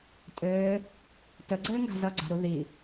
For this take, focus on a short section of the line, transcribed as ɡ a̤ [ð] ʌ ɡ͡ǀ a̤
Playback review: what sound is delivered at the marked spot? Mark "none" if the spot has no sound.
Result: z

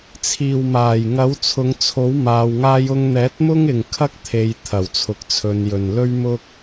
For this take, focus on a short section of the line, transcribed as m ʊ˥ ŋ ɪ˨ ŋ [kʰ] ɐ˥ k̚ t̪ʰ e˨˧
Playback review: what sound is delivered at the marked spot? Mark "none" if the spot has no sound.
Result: kʰ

